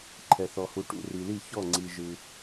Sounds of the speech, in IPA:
ǃʰɛ˨θɔ˨hu˨ ʈṵ˨ri˨li˦˨ çɔ˦˨ŋ͡ǀi˨ ʒɯ˨

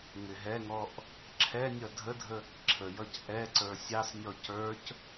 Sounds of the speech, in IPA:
ŋɪɦɛŋɔʔ | ǁʰɛnʲʌ dʱədʱə | ǁʰəjʌc ʔɛǀə˞ sʲɑsnʲɔ cə˞c

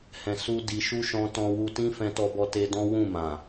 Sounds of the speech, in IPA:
hɛ̃˧ su˦ di˧ʃu˦ ʃɔ̃˦ tɔ̃˧wu˧tĩ˦ fɛ̃˦tɔ˦bɔ˦te˦ dɔ̃˦wũ˦˨ mã˨

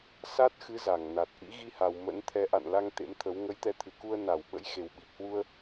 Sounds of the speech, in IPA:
sa˦˥t̚xɨ˨˦ za˧˩ŋna˨˩t̚ ʔḭ˧˥ɣi˧ha˨˩w mə̰˧˥n t̪ʰɛ˨˦ʔa̰˧˨nla˧ŋ t̪ḛ˧˥mt̪ʰə˨˦w ŋə˨˦jt̪ɛ˨˦t̪ʰɨ˨˩ku˧ə̯ na˧˩w ɓə̰˧˥jxe˨˩wɓi˨˩p̚hwu˧ə̯

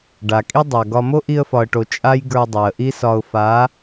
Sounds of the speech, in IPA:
ɖa˨kʼi˦ dˤa˨ɡɒ˧ mo˦ʔi˧ə̯fɒ˨ə̯ʈo˨ t͡ʃʼa˦jɡə˞˧ dˤɛ˨ə̯ʔi˦sɒ˧ʊ̯ fa˨˦

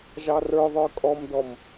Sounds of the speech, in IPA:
ʒɑrə˞ðˤə˞ kʼɔmdɔm

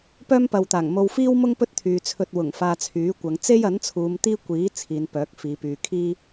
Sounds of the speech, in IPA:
pœː˥mpɐ˨wt̪aː˨˩ŋmo˧w fiː˥wmʊ˥ŋ pɵ˥t̚t̪ʰyː˨t͡sʰɵ˧t̚wʊ˨˩ŋ faː˧t͡sʰyː˨˥kʷɐ˨˧ŋ t͡se˥jɐ˨˥nt͡sʰuː˨˧m t̪iː˥kʷiː˨˥ t͡sʰiː˨˧npœː˨˥k̚fiː˨˧ pyː˨kʰiː˥

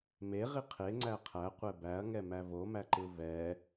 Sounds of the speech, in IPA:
meʁi qʰeŋ͡ǀæ qʰæqʷɛ bæɐ̯ŋɛmæ vomæǃɯ vɛ

